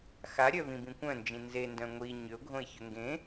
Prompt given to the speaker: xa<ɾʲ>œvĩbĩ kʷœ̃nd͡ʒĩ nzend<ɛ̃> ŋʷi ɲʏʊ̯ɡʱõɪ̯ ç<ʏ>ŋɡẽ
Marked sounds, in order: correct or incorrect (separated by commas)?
correct, incorrect, correct